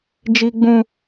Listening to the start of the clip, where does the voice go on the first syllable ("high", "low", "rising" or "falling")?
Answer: high